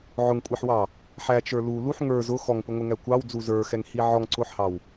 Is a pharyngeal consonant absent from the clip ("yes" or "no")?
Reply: no